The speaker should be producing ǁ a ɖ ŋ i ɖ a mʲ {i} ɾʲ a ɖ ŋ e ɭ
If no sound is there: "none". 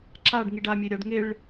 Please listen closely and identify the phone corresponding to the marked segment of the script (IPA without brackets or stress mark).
e